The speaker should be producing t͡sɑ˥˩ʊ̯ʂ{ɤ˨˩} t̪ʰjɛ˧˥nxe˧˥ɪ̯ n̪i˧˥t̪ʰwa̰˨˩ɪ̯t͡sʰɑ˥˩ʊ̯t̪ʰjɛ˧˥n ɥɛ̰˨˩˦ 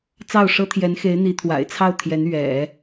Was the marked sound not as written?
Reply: yes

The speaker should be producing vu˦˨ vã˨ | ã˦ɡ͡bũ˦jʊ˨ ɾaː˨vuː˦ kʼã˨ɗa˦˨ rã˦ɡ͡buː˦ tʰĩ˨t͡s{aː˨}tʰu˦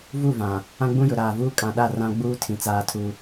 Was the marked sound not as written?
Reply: yes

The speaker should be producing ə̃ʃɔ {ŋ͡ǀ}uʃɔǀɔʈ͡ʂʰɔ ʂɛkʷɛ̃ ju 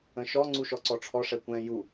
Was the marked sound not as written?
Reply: no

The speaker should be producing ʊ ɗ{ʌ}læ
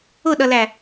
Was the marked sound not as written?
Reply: no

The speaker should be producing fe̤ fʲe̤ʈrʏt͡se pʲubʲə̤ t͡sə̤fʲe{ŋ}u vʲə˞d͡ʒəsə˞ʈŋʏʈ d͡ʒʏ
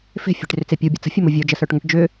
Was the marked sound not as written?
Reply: yes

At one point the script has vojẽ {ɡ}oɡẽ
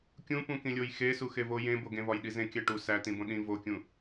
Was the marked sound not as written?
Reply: yes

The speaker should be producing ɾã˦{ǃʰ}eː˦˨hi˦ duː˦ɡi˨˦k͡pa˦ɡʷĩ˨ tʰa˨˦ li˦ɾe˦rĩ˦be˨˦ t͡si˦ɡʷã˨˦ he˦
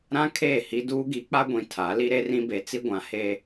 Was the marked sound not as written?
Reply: yes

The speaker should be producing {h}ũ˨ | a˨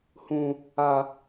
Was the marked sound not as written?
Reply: no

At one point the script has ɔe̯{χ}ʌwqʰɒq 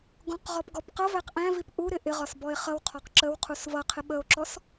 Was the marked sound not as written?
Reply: no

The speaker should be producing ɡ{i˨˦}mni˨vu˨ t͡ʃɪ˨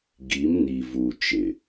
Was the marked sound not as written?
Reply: no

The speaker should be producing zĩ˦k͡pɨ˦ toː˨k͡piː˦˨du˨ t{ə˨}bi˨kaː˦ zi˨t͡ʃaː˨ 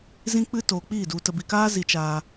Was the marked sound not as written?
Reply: no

